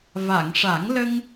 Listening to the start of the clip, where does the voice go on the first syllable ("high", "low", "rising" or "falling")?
low